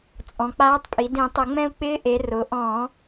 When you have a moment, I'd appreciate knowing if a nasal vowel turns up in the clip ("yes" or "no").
yes